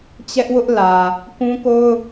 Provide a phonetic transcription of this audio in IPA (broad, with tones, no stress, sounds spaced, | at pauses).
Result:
t͡ɕ ɛ˦ ʔ w ʊ˦ ʔ l ä˨ | k ũ˦ k o˦ ʊ̯